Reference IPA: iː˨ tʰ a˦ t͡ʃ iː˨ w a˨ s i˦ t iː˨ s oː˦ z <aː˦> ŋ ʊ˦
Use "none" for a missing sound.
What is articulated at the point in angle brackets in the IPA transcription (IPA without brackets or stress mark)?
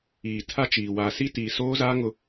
aː˦